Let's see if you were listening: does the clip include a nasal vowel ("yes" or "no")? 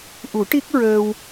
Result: no